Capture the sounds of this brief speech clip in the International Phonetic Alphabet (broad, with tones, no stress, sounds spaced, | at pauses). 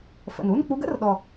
f ə̰˨˩ n u˧˥˧ n k͡p u˧˥ ɡ ə̰˧˥˧ r ɗ ɔ˨˩